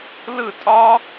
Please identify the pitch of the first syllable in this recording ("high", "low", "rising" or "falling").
falling